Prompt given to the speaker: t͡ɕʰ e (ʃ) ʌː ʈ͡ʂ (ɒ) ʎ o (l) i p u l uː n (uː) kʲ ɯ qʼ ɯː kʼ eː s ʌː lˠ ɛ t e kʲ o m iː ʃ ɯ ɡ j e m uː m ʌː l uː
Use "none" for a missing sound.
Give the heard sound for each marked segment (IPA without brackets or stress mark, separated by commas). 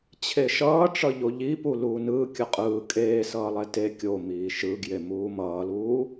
ʃ, ʌ, ʎ, ɯː